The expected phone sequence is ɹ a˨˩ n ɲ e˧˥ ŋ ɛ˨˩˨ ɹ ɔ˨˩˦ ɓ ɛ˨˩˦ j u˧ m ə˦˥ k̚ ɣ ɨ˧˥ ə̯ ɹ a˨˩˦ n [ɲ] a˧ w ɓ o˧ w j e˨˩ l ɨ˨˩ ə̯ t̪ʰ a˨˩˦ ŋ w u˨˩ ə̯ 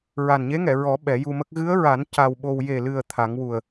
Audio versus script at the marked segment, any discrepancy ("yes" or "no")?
yes